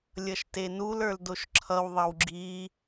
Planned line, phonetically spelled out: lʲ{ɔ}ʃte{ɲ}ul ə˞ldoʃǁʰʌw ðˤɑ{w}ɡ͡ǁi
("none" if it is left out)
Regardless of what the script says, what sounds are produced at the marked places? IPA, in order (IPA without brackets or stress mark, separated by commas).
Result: ʌ, n, w